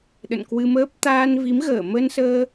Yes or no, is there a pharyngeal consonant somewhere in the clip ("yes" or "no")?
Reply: no